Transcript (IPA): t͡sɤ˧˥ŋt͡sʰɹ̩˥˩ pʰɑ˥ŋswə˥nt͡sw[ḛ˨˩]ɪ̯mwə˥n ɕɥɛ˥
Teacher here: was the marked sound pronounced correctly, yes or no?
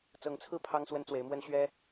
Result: no